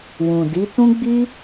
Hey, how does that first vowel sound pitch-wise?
low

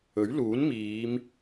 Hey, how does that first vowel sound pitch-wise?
rising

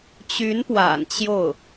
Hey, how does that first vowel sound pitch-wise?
rising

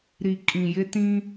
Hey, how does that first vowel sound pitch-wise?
low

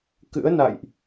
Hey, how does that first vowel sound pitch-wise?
rising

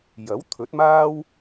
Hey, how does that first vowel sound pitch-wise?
rising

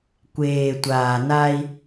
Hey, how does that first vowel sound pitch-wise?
low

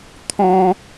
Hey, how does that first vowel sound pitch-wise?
high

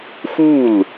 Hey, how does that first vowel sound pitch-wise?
falling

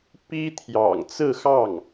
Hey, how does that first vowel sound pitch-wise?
high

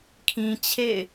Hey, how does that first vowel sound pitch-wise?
low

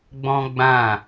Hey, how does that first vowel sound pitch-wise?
high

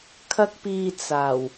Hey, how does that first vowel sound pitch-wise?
high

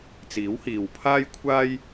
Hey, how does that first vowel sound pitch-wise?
rising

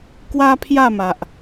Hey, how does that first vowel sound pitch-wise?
high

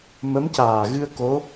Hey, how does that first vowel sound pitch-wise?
rising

